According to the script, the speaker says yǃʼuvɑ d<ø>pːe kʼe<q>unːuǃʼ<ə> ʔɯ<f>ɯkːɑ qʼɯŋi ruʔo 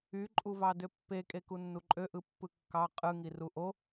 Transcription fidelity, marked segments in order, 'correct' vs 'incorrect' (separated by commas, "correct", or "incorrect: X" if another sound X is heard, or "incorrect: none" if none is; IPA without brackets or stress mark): correct, incorrect: k, incorrect: ø, incorrect: pː